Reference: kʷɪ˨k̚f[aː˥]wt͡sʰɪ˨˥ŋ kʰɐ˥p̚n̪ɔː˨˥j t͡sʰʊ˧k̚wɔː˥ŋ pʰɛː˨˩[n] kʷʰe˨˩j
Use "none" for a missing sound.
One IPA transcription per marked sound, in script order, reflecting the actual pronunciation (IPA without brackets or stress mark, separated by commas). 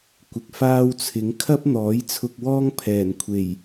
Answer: aː˥, n